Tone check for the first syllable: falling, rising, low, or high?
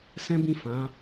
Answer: high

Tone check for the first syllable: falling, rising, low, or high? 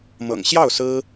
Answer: low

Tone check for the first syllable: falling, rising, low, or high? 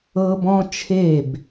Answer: high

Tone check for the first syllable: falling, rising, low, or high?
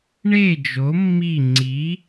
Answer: falling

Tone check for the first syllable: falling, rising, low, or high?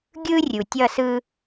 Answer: high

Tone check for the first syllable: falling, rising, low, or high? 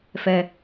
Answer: low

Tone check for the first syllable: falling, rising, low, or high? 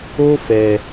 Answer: high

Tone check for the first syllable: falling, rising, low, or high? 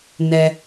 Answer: low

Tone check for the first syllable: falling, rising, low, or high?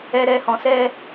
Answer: high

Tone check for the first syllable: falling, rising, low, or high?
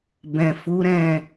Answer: low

